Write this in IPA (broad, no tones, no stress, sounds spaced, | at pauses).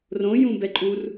r õ j ũ b ɛ ǃʼ u r